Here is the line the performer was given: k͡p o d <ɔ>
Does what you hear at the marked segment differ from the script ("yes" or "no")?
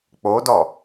no